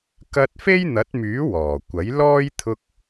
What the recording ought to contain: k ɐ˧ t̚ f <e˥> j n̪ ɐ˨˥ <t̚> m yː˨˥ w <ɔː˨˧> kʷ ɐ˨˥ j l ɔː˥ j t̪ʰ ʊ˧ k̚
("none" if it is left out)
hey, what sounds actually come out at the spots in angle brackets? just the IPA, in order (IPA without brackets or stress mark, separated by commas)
e˥, t̚, ɔː˨˩